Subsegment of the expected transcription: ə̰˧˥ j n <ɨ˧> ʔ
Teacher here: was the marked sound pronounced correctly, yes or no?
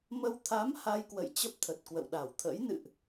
no